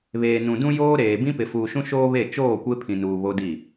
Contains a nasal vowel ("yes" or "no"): yes